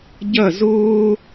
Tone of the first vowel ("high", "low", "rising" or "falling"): falling